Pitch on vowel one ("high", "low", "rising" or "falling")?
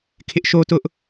high